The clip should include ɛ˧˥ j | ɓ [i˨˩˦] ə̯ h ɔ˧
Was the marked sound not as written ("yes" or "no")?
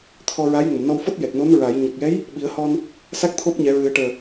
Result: no